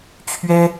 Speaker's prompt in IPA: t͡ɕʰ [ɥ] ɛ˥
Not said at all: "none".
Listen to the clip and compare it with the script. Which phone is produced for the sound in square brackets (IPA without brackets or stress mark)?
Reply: ɥ